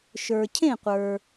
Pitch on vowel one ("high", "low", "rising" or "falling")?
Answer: low